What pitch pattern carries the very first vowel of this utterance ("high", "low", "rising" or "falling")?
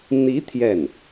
rising